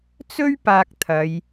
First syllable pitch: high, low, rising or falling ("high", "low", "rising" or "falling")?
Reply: high